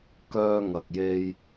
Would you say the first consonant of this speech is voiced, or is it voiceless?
voiceless